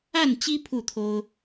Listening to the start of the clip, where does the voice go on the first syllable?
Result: falling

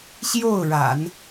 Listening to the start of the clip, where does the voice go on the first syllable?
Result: falling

